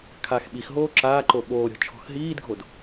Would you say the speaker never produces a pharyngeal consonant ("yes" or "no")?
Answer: yes